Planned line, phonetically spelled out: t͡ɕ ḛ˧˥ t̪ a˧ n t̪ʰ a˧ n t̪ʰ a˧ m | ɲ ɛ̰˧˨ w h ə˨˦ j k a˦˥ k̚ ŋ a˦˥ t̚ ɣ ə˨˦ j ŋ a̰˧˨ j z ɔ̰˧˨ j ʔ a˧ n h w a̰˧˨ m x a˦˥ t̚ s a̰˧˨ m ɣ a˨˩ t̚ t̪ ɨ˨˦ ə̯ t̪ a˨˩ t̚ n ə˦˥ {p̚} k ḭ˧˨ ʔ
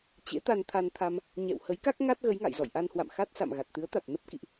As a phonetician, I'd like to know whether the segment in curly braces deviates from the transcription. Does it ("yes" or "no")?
no